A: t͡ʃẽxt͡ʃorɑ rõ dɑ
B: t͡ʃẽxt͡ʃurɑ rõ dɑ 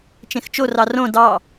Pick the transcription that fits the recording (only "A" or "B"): A